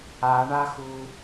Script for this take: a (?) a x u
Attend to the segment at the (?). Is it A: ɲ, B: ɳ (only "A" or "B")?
B